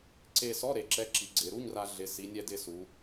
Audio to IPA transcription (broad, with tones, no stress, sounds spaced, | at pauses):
ǀ e˧ s ɔ˧˥˧ ɾ e˩˧ ǁ ɛ˨˥ ǁ i˩˧ ɡ͡ǀ ɪ˩˧ ɾ u˧˥˧ ɲ r a˧ ɮ ɪ˩˧ s i˩˧ nʲ ɛ˧ d ɪ˧ s u˩˧